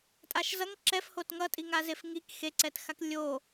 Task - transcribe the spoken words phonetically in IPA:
tʼ a ʃ z ʌ ŋ ǁ ɛ f h o t ŋ ʌ tʼ i ŋ a z e f ŋ i k x e ǀ ɛ t x a k lʲ o

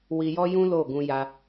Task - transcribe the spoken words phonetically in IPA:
w i˧ j ɔ˦ j ũ˦ l o˦˨ ɡ ũ˧ j a˧

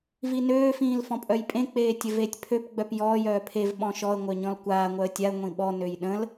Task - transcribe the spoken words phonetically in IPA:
v i n øː f ĩː l f ɔ̃ pʼ œ j pʼ ẽ k͡p eː tʲ ə v eː tʲ pʰ ø p ɡ͡b œ p j ɔː j œː pʰ e v ɓ ɔ̃ ʃ ɔ ə̯ ŋʷ œ ɲ ɔ̃ l kʷ aː ŋʷ œ ə̯ tʲ a ə̯ ŋʷ ĩ ɓ ɔ n ø j ɗ ə̃ l

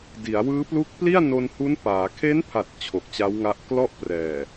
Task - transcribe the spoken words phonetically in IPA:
d i˩˦ a̯ w ɯː˦˥ p l u˦˥ k̚ p l i˥˩ a̯ n o˧ n h u˦˥ n p aː˩˦ kʰ e˦˥ n pʰ a˨˩ t̚ t͡ɕʰ o˨˩ k̚ t͡ɕ a˦˥ w ŋ a˦˥ ʔ k l ɔ˥˩ ʔ p r ɛː˨˩

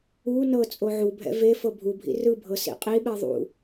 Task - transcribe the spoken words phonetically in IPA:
u n ɤ t͡sʼ o ʕ u bʱ ɛ̰ v e f ɤ bʱ u bʱ ḭ r ɯ bʱ ɤ s ḭ qʼ i ɓ ɛ ðˤ ṵ

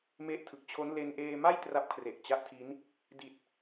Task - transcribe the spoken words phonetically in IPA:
m e˦˥ ʔ tʰ ɯ˨˩ k̚ t͡ɕʰ o˦˥ n l e˧ n ʔ eː˧ m a˥˩ j t r a˦˥ p̚ kʰ r e˨˩ ʔ t͡ɕ a˦˥ ʔ tʰ i˦˥ n | d i˨˩ t̚

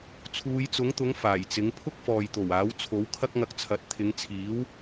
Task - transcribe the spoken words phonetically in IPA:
t͡sʰ uː˨˧ j t͡s ʊ˨˥ ŋ t̪ ʊ˨˥ ŋ f aː˨˩ j t͡s ɪ˨˥ ŋ pʰ ʊ˥ k̚ f ɔː˨ j t̪ o˨˩ w aː˨˥ w t͡sʰ o˨˥ w kʰ ɐ˥ k̚ ŋ ɐ˧ k̚ t͡sʰ ɐ˨˥ t̚ t̪ʰ ɪ˨˧ ŋ t͡sʰ iː˨˥ w

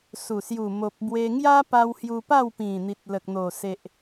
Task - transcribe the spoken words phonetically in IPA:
s u˨˩ s j u˨˩ m o˨ p̚ b w e˧ ŋ j a˦ p a˧ w h j u˧ p a˥˧ w p ĩ˨˩ n̪ i˨ t̚ l ə˨ k̚ n̪ o˨˩ s e˨ ʔ

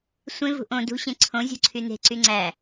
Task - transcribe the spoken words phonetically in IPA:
sʷ ẽ v ṳ ʔ õ d ṳ ɕ ẽ ǀʰ õ zʲ o̤ ǀʰ y n e̤ ǀ y ŋ͡ǀ æ

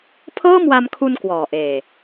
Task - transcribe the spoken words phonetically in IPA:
pʰ ɤː˥˩ m w a˧ m kʰ u˧ n k w ɔː˨˩ ʔ eː˨˩

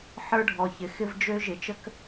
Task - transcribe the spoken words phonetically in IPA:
ħ ə˞˦ ɖʱ ɔ˨ ç ɪ˨ x ɪ˦ v d͡ʒ ø˦ ʒ ɪ˨ t͡ʃ ə˦ k

